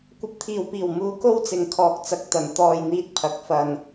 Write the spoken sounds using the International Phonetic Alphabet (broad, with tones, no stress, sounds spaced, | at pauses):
kʷ ɐ˨˥ p̚ t̪ʰ iː˨˩ w p iː˨˩ w m uː˨ k o˥ w t͡s ɪ˨ ŋ kʰ ɔː˨ k̚ t͡s ɐ˨ k̚ t̪ ɐ˨˩ n t̪ ɔː˨ j n̪ iː˨ t̚ pʰ ɐ˨˥ k̚ f ɐ˨ n